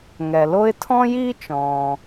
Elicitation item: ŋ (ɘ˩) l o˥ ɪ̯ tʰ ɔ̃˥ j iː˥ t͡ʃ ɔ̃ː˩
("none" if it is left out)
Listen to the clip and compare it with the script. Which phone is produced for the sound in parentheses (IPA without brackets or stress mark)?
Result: ɛ˩